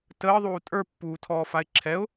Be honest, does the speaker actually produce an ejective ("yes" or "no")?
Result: yes